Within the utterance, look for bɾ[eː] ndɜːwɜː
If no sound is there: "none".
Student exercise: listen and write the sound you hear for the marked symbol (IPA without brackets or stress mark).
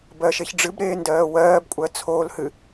eː